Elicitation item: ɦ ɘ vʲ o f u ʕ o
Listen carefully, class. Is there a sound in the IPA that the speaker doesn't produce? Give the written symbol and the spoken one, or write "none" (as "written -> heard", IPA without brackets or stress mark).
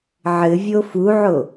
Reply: ɦ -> ʕ